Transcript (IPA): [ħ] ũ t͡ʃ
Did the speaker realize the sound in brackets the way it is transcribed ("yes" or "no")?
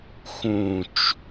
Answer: no